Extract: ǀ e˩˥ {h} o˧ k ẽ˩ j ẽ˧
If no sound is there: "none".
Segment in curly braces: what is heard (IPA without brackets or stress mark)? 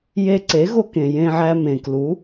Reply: ɣ